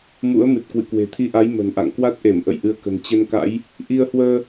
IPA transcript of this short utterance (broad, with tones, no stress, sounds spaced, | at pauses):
m ṵ˧˥ ə̯ m ɨ˨˩ t̚ k w ɨ̰˧˨ k w e̤˨˩ t̪ʰ i˧ ʔ a˨˦ j m ə̤˨˩ n ʔ a̰˧˨ ŋ k w a˦˥ t̚ ʔ e˧˩ m ʔ ə̰˧˨ j ʔ ɨ˧ ə̯ k ə̤˨˩ n t͡ɕ ə˧ n k a̰˧˥ j | ʔ i˧ ə̯ h w əː˧